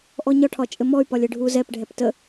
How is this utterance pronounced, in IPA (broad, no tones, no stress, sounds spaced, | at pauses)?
ʔ ɔ ɲ ɒ ʈʰ ɒ t͡ʃʼ ɘ m ɔ y̯ p ɒ lʲ ɘ ɖʱ u z ɛ p ɖʱ ɛ p t ə